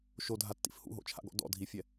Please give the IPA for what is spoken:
ʃ o dʱ a tː ḭ f h ṵ ɦ o̰ t͡ʃʰ a̰ ɡ ɔ̰ d ɔ̰ dʱ i fʲ ɛ

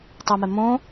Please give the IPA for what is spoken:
tˤ ʌ m ɛ m õ

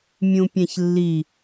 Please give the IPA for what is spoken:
mʲ ũ pʲ æ̃ ç lː i

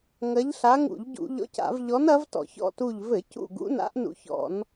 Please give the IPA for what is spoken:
ŋ ɐ˧˥ ʎ ɬ a˧˥ ŋ ṵ˧˩˧ ʎ ɟ ṵ˧˩˧ ʎ ɔ̰˧˥ c a̰˧˩˧ v ʎ ɔ˧˥ n ɐ˧˥ v t ɔ̰˧˩˧ ç ɔ̰˦˨ t u˦˨ ʎ v ɘ˧˩˧ c ṵ˦˨ ɡ ṵ˧˥ n a̰˧˥ ʔ n ṵ˧˩˧ ç ɔ̰˧˩˧ n

